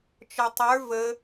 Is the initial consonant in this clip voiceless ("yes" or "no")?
yes